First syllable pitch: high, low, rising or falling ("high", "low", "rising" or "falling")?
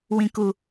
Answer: low